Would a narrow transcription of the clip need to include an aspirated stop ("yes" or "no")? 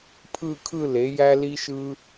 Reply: yes